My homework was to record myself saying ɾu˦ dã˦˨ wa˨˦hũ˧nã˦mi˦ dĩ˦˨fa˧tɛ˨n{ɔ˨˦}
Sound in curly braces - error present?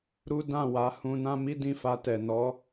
no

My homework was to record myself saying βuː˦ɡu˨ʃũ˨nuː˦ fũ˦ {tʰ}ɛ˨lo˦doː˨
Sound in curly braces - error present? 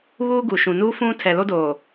no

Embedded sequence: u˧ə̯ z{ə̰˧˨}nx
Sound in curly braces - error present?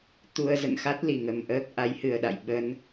no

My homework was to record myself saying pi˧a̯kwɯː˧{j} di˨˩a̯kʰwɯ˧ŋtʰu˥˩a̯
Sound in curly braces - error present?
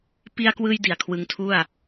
no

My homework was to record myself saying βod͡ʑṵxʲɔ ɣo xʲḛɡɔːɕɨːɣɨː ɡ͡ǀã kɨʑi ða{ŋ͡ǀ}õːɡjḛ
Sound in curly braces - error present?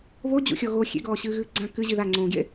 no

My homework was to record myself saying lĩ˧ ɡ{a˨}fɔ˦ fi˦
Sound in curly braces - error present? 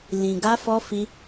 yes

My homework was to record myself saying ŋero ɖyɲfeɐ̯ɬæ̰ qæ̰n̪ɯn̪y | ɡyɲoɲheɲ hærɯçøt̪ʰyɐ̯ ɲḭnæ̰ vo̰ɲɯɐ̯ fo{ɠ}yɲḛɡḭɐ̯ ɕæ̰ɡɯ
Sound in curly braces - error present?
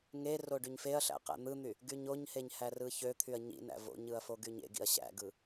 yes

